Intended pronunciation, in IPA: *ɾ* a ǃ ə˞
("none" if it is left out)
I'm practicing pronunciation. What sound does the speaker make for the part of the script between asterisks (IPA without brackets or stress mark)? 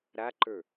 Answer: ɾ